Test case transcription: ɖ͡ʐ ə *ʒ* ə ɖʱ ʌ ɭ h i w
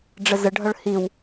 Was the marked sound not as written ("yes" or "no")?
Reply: yes